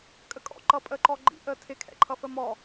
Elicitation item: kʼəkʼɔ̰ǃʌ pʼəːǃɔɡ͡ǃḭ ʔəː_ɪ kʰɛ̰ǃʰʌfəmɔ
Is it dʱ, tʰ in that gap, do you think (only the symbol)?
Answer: tʰ